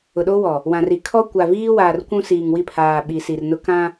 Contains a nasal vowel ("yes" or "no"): yes